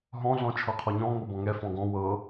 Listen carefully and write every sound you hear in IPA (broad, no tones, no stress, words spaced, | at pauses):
ɦɔ̃ ɮɔ̃t͡ʃʰɤqʰɔɲɔ̃ ŋobɔ̃ŋɛ fɔ̃ɡɔ̃ wɤ